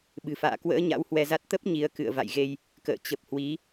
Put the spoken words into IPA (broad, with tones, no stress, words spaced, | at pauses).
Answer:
ɓɨ̤˨˩fa̰ː˧˨ kwə̰ː˧˥ ɲa̰˧˥whwɛ˧za˦˥t̚ t̪ə˦˥p̚ ɲi˨˦ə̯ kɨ̰˧˨ə̯ va̰˧˨jɣe˧j | kə̰ː˧˨ t͡ɕə˨˩p̚hwi˨˦